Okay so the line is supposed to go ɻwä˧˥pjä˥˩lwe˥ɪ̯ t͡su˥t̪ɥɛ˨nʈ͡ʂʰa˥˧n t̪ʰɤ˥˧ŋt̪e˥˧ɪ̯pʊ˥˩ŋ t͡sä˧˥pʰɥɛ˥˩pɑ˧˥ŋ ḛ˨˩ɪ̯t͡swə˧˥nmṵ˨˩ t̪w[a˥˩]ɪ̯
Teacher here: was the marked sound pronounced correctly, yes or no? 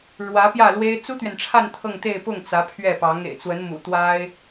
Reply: no